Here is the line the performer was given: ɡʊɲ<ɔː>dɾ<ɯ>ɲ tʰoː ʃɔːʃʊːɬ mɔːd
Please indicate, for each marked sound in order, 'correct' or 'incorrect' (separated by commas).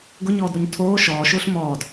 correct, incorrect